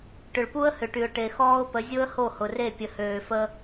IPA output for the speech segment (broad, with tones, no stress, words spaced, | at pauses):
ʈʏ˨ɭpu˦ə̯ hʏ˨ʈy˨ʊ̯ʈe˨ xɔː˦ʊ̯pə˨˦ zʲo˦ə̯ho˦˨ hʊ˨re˦˨ pʲə˨høː˨fə˦